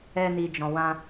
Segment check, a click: absent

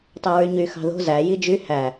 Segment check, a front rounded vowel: present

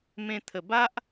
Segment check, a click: absent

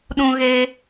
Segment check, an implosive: present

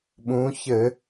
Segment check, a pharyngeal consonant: absent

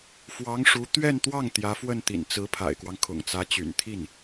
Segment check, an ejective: absent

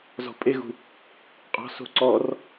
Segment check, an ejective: present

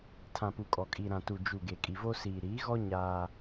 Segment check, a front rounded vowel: absent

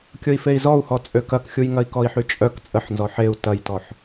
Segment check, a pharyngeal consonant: present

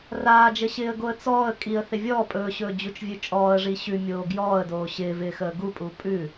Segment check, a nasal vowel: absent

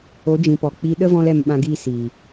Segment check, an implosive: present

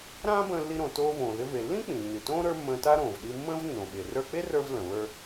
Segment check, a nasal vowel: present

